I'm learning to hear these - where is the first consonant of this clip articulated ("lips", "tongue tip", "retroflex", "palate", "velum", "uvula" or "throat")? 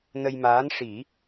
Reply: tongue tip